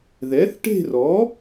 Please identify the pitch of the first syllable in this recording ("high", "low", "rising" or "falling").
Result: rising